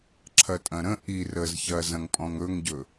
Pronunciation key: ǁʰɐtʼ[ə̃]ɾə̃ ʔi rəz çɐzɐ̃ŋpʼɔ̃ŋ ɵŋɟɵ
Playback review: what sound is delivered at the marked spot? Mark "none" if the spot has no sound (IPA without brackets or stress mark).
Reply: ɐ̃